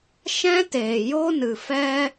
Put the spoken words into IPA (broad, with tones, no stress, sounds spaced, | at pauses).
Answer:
ʃ ɛ̃˦ t eː˨ j o˦ n ɨ˨ f ɛ˦